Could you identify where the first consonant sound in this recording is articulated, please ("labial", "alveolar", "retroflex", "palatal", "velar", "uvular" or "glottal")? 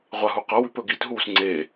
uvular